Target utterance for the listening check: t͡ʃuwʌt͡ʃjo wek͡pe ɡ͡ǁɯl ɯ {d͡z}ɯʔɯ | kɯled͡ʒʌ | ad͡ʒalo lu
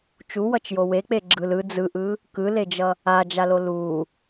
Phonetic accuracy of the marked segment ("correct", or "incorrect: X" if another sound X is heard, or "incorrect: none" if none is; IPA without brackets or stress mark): correct